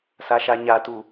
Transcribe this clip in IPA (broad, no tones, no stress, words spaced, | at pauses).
saʃaɲatu